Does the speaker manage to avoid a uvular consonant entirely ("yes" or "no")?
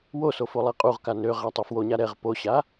no